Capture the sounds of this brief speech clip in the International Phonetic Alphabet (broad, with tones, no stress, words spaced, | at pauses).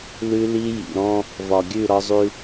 lʉ˦li˦ jḭ˨ɾɔ̃˦ | vɒ˨ɡʲʉ˦˨ɾɒ˦zˤʉ˦